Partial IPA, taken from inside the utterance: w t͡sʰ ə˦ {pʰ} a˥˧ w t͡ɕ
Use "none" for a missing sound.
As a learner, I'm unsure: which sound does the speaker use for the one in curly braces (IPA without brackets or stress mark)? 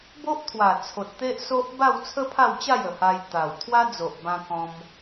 pʰ